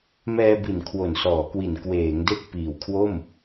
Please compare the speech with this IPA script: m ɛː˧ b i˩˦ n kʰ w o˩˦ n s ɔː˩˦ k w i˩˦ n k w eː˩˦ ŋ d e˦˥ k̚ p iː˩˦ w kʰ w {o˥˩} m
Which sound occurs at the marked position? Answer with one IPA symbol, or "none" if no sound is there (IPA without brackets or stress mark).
o˥˩